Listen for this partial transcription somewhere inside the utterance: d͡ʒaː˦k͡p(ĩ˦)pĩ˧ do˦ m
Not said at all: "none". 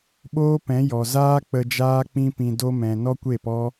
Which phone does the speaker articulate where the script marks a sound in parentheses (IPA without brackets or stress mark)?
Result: ĩ˦